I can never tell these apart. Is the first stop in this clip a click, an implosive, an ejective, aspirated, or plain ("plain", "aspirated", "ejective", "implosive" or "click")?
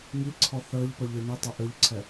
click